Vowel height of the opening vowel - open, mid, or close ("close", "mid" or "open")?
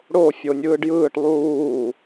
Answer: mid